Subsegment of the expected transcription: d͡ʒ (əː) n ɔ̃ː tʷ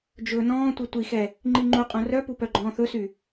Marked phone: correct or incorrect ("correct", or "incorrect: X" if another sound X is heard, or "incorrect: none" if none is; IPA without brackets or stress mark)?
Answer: incorrect: ɵː